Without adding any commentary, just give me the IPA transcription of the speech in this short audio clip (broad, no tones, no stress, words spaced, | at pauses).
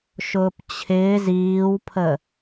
ʃʊːpt͡ɕʰɪːz iːwpʰə